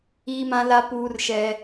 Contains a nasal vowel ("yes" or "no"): yes